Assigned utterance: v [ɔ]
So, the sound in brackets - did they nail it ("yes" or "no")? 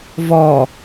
yes